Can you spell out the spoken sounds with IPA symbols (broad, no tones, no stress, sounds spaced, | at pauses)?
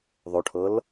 ðˤ o ʈʰ ɤ l